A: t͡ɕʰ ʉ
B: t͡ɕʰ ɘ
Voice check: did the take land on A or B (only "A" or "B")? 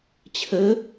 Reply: B